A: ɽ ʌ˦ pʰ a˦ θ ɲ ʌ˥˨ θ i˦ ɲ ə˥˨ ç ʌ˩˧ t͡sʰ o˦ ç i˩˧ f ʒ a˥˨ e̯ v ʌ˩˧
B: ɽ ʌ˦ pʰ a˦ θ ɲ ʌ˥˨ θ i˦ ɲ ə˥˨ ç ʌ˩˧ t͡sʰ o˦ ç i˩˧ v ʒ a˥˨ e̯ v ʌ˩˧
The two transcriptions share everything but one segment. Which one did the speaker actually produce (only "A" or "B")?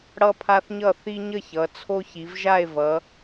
B